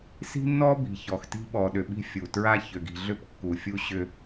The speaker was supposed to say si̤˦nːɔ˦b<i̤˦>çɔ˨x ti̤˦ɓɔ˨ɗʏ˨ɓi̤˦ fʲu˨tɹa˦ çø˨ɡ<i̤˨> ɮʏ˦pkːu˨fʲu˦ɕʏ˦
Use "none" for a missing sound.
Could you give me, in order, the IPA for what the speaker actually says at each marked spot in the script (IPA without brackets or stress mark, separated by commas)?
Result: i̤˨, i̤˨